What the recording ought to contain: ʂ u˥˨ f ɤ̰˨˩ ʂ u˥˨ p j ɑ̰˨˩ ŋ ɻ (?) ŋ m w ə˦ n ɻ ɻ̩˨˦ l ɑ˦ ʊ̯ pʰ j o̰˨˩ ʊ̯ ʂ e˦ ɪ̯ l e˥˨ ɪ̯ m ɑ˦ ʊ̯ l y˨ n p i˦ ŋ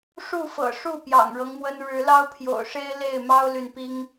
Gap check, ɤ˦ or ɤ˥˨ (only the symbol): ɤ˦